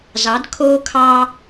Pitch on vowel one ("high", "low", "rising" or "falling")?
rising